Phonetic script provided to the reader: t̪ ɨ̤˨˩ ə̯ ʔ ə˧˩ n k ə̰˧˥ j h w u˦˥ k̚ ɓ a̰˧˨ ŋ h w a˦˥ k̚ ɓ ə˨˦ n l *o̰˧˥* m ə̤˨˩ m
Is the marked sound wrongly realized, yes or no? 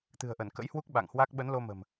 yes